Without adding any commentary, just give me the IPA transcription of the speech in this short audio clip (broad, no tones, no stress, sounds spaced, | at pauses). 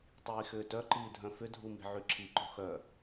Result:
tˤ iː x ʏː t œ ǃ iː dʱ œ̃ f ʏ dʱ u m i̤ ʕ y ǁʰ i ǃ o̤ x œ